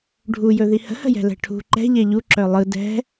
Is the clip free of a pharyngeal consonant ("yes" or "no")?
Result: yes